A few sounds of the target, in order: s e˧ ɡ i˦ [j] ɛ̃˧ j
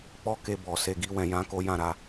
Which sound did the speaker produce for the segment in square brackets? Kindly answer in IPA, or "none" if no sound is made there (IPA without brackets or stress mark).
w